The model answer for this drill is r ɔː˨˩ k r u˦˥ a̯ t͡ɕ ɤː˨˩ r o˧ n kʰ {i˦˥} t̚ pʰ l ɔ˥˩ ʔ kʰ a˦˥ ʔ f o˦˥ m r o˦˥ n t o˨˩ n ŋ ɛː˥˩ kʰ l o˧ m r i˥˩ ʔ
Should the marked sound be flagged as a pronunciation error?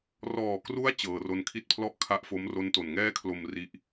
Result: no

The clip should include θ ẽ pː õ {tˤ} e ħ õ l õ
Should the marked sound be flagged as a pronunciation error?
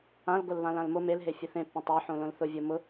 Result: no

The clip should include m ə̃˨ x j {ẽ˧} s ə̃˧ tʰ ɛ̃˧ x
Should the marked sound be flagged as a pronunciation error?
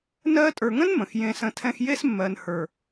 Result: no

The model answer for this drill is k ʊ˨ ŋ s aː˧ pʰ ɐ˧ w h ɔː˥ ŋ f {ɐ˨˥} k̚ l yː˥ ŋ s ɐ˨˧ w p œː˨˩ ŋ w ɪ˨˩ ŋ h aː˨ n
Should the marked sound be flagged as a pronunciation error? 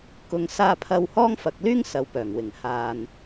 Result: yes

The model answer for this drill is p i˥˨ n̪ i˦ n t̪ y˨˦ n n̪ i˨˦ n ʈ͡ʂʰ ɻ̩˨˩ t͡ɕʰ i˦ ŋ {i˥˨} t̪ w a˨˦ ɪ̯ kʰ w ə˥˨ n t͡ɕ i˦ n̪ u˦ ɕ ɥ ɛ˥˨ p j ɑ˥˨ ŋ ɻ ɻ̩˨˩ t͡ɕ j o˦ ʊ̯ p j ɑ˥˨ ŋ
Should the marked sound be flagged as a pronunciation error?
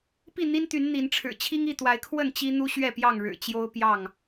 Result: no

